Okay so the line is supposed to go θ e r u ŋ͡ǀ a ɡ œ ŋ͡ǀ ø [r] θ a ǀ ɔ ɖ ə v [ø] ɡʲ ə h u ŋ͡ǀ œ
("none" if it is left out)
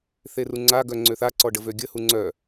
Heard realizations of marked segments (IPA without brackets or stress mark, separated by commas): none, ø